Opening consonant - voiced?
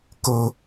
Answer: no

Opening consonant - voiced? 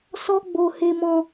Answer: no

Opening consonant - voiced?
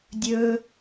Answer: yes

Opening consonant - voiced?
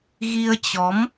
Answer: yes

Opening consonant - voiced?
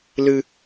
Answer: yes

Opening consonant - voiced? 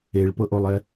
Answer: yes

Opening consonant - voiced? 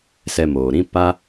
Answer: no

